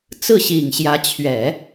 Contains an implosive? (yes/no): no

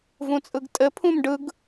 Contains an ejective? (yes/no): yes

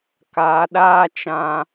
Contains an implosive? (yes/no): yes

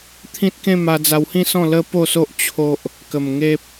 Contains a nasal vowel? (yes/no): yes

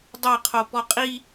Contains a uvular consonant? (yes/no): yes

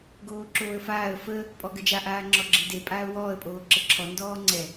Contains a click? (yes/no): yes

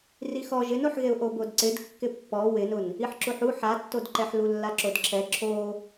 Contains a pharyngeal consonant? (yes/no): yes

